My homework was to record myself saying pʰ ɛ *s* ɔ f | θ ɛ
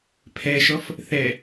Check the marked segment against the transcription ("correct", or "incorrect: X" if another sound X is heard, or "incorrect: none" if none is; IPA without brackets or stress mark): incorrect: ʃ